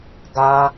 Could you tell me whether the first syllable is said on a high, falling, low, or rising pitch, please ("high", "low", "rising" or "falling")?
high